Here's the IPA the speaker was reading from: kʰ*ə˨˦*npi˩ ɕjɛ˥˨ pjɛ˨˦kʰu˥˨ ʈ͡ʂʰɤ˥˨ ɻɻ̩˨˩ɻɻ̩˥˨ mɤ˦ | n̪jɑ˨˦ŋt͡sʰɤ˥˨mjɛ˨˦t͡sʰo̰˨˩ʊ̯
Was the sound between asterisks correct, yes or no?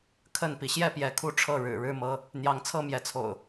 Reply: no